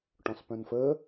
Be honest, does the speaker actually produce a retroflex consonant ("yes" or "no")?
yes